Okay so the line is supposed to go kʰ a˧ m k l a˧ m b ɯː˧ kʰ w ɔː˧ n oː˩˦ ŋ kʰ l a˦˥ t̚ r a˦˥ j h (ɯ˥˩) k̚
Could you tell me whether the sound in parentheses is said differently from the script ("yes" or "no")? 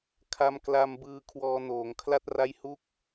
yes